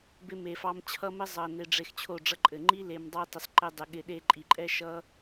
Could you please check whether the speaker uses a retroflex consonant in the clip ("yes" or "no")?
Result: yes